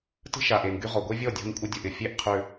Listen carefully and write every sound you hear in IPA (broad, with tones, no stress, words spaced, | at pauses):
tə̤˦ ʃa˨ ʔe˨nɡy˦ʁɔ˨ ɡʷe˦vʲɔ˦˨ dʲɔ̤˦nkʷʼə˦ dʲo˨ʔɪ˨fʲe˦˨ʔqʰʏ˨